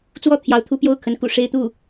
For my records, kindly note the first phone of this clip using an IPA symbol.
t͡s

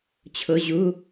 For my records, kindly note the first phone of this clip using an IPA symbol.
t͡ɕʰ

